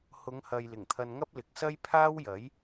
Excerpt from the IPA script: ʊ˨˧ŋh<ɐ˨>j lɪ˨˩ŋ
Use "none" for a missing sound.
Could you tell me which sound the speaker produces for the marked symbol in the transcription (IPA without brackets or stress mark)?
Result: ɐ˨